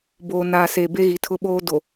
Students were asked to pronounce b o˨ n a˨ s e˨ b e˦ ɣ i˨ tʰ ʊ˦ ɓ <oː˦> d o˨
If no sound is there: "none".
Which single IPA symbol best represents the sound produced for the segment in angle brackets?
oː˦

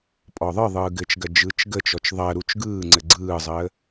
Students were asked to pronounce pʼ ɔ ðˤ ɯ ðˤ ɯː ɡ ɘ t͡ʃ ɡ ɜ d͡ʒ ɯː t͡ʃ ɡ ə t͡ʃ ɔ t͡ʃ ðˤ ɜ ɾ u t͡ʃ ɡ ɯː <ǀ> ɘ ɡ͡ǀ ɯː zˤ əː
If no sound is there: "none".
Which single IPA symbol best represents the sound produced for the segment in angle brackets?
ŋ͡ǀ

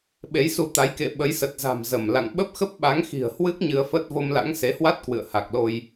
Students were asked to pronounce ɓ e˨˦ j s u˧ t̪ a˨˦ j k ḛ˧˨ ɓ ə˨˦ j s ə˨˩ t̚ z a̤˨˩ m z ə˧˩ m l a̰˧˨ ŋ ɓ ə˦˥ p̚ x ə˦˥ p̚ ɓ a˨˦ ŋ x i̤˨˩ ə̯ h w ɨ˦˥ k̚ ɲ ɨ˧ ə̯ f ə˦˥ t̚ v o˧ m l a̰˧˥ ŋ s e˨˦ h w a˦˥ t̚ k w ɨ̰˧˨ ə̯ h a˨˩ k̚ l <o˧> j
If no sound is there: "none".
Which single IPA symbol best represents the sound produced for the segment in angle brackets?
o˧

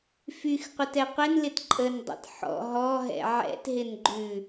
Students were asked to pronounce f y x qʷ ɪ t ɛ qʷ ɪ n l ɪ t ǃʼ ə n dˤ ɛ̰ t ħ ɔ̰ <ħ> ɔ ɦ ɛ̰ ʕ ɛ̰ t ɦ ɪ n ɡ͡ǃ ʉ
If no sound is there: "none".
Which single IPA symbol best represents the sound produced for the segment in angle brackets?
ɦ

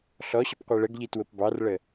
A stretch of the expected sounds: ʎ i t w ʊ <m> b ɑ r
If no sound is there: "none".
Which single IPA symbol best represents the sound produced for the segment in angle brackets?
p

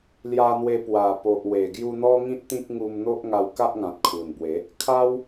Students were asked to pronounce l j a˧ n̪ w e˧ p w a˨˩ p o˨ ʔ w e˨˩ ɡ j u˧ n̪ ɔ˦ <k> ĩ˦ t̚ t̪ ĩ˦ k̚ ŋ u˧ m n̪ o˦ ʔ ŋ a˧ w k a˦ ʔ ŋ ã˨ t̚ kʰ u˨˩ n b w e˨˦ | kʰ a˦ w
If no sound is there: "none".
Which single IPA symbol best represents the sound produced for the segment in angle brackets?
ŋ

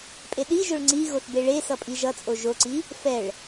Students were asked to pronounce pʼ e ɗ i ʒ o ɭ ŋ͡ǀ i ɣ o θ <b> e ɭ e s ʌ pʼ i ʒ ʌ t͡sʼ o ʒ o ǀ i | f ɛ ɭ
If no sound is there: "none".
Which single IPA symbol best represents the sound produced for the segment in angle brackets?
b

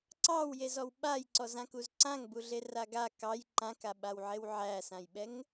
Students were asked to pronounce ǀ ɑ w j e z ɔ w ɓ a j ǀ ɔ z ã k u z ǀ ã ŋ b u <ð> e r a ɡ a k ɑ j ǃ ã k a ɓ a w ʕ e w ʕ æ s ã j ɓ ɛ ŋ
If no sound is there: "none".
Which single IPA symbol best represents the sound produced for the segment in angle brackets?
ɮ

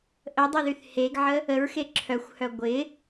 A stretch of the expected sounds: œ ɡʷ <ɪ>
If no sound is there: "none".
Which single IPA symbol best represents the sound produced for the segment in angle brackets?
ɪ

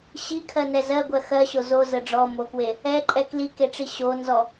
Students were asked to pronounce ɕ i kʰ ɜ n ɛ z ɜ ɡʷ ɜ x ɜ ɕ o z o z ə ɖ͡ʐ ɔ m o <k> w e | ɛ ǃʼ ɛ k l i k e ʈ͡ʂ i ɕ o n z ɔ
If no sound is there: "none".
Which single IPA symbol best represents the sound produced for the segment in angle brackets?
k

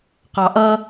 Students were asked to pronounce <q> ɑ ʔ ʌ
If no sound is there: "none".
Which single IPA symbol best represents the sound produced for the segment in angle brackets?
q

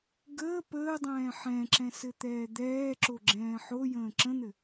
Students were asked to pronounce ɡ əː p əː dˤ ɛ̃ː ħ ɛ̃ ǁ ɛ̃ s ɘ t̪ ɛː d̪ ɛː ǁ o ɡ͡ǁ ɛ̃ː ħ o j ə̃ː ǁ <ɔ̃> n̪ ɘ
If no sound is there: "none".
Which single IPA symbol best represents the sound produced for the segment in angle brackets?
ə̃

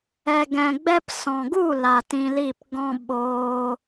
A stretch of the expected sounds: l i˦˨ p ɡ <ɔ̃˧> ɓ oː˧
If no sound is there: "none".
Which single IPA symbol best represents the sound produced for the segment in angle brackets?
ɔ̃˦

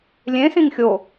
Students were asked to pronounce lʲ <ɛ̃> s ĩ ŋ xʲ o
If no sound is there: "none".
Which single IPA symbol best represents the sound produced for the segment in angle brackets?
ẽ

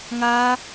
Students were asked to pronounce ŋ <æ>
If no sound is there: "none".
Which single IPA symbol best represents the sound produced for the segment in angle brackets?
a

